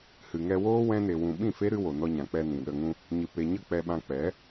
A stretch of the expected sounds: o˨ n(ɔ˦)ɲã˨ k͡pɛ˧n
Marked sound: incorrect: ɔ˧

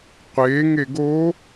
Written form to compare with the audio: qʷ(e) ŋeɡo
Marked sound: correct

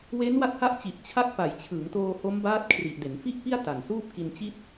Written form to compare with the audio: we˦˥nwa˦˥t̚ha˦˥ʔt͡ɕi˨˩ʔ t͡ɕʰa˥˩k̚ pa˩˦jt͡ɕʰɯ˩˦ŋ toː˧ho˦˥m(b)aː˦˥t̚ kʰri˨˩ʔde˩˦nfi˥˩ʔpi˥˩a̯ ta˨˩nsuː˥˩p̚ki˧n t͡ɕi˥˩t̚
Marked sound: correct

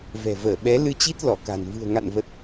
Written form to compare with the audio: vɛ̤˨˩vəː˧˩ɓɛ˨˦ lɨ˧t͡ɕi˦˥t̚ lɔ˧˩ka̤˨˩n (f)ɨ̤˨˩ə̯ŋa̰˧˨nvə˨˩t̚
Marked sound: incorrect: v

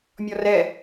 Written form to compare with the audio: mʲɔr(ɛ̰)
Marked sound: incorrect: ɛ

